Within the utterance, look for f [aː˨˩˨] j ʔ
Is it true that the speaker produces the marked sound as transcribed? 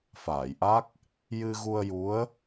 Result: yes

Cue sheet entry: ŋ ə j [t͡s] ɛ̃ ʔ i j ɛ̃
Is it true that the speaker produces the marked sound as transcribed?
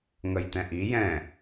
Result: no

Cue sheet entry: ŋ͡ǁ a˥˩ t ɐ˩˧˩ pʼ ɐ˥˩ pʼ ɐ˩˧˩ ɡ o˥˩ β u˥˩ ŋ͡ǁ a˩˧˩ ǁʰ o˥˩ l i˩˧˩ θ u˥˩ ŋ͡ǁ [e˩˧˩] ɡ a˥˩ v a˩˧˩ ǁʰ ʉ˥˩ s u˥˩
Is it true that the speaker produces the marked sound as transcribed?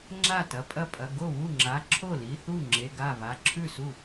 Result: yes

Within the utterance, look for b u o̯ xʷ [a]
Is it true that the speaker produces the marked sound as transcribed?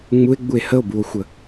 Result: no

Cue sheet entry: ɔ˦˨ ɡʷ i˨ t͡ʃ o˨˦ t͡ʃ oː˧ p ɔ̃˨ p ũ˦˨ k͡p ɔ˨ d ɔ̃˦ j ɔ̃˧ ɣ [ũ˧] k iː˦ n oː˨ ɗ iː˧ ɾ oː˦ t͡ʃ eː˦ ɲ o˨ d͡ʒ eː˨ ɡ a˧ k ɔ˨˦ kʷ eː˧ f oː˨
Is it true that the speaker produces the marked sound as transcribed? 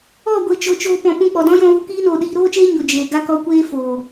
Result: no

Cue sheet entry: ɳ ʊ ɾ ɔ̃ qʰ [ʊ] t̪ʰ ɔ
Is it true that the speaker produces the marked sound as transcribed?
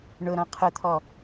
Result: yes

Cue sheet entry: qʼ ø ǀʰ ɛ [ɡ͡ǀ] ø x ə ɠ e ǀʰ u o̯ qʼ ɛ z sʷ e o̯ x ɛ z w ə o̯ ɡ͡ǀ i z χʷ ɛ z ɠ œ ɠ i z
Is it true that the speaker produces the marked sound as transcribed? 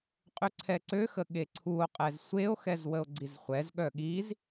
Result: no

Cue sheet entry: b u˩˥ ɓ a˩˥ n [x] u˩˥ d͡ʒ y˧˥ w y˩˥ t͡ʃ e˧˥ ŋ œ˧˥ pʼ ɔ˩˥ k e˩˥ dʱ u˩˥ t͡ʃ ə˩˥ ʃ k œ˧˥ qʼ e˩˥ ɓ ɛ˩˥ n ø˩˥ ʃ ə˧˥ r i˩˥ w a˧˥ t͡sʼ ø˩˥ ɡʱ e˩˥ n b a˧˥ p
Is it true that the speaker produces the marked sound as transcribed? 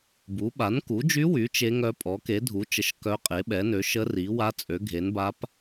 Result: no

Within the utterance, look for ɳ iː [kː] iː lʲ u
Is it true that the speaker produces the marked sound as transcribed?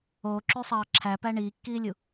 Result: yes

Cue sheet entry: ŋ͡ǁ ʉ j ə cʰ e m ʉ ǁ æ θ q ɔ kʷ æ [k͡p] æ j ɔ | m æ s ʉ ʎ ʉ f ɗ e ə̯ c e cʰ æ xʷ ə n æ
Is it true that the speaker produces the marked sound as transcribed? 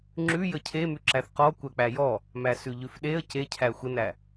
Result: yes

